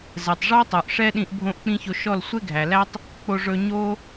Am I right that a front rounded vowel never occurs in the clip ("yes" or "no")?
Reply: yes